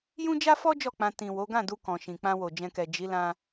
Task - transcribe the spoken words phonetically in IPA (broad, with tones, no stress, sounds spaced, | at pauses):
j ũ˦ d͡ʒ a˦ f ɔ˦ d͡ʒ ɔ˦˨ k͡p ã˧ t ĩ˨ w o˨˦ ɡ ã˦˨ d u˧ k ɔ̃˨ ʃ ĩ˨ k͡p ã˧ w o˨ d͡ʒ ɛ̃˨ k ɛ˨ d͡ʒ i˨˦ l ã˧